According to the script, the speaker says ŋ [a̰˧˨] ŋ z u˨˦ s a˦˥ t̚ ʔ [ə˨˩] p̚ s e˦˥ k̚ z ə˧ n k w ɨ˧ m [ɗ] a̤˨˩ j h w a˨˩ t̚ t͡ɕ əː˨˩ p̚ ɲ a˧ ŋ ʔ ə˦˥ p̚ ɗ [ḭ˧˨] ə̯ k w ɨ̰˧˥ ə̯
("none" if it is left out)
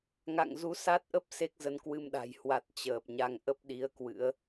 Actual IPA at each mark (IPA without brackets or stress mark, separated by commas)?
a̰˧˨, ə˦˥, ɗ, i˨˦